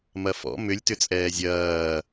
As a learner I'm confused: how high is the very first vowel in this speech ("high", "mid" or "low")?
low